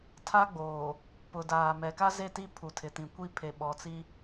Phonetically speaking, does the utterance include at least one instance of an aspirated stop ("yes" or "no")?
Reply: yes